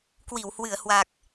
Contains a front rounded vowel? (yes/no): no